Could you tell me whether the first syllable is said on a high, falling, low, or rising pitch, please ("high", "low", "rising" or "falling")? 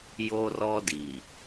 high